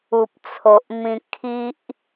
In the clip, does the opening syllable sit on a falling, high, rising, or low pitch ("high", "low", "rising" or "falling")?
low